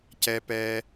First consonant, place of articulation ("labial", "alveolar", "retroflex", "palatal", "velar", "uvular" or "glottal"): palatal